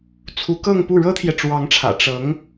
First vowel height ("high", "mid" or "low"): high